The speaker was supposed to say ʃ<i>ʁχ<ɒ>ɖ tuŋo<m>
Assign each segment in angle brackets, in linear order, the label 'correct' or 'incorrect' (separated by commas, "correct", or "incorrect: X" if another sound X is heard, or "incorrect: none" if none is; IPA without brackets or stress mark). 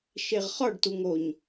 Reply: incorrect: e, correct, incorrect: ɲ